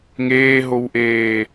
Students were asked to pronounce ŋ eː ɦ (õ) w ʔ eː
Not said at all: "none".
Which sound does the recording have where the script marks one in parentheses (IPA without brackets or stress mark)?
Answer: o